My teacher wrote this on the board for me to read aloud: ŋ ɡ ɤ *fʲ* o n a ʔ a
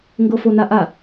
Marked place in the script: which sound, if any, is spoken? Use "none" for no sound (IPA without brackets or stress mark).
f